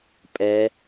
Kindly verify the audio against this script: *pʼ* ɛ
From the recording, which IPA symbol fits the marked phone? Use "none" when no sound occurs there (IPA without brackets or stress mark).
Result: pʼ